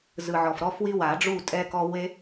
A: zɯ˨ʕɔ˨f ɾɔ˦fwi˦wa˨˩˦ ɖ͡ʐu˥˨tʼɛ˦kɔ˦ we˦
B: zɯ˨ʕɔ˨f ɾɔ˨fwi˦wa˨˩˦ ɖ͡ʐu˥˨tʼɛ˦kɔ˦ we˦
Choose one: A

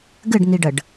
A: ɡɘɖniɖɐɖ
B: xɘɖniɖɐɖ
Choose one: A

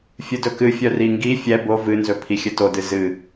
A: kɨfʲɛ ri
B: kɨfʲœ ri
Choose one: B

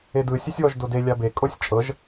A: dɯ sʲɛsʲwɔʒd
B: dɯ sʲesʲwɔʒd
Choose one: A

